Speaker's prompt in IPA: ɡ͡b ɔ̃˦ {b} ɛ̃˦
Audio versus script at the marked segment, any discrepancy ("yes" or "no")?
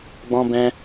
no